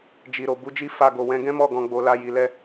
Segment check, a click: absent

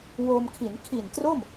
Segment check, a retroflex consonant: absent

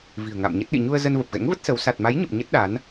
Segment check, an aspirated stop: absent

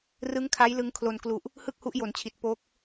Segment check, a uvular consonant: absent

